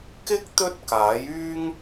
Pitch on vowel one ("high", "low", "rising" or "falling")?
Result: high